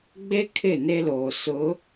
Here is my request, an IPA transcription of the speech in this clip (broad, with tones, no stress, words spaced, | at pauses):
ɡ͡be˦ kʰɪ˦˨ne˦loː˨ sʊ˨˦